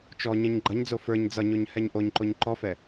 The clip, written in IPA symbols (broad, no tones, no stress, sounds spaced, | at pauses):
t͡ʃ ɔ ɲ ɛ̃ ɲ ɡ͡ǃ ʌ ɲ d͡z o f ə˞ ɲ d͡z ʌ ɲ o ɲ h ɛ ɲ ʔ o ɲ ǃ o ɲ ǃ ɔ f ɛ